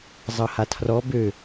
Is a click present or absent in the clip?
absent